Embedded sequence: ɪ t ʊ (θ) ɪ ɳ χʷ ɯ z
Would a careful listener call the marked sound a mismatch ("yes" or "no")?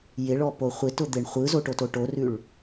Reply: yes